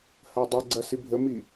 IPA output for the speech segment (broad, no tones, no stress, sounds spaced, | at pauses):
h ɐ dˤ ə ɡ͡ǀ ɐ s i bʱ ə m i